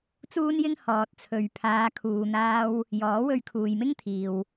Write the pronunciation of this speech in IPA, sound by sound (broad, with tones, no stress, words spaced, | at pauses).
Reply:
t͡suː˥njɪ˥ŋ hɔː˨t̚t͡sʰɵ˨ɥ pʰaː˨˧kʰuː˨n̪aː˧w | jɔː˨˥wɵ˧ɥkʰuː˨jmɪ˥ŋ t̪ʰiː˨w